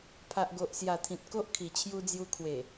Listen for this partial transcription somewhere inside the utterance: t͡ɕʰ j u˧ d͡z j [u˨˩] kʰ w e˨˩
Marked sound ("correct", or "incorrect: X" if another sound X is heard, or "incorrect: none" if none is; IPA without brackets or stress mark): incorrect: u˧